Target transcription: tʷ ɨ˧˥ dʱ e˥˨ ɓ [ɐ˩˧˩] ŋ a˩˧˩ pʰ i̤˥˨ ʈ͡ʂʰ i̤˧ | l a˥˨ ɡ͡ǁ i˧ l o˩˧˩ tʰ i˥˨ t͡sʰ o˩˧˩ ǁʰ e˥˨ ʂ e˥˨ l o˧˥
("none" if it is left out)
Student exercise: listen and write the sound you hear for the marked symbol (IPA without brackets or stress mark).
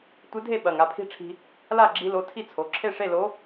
ɐ˩˧˩